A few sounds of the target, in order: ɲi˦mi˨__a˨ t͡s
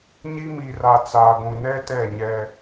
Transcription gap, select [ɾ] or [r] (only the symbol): r